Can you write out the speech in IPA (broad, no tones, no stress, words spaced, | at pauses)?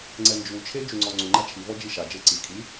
ŋ͡ǀɛnd͡ʒut͡ʃʰe d͡ʒuŋ͡ǀɔŋ͡ǀu ŋ͡ǃat͡ʃʰivɔ d͡ʒiʃa d͡ʒeǀi kʰi